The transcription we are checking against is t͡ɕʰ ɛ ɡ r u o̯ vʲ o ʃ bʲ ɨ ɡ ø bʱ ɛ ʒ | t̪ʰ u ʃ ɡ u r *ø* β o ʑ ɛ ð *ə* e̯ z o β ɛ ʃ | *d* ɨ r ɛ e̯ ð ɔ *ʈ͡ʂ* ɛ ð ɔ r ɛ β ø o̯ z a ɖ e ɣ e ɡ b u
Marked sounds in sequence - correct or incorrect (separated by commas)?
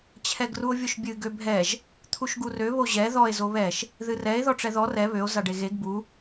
correct, incorrect, incorrect, correct